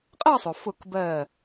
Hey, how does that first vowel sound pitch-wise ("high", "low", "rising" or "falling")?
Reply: falling